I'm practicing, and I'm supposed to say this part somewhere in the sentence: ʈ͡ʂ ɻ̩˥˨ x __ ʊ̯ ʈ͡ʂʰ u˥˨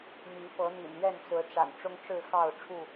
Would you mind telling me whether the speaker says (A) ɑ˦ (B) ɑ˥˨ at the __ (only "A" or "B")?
B